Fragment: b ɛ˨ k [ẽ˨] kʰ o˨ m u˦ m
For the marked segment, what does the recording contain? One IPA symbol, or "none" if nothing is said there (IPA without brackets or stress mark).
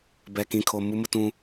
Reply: ĩ˨